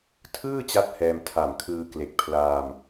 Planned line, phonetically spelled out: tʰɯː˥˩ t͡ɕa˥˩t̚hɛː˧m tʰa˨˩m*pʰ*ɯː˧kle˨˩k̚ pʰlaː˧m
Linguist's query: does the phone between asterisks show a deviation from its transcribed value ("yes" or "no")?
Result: yes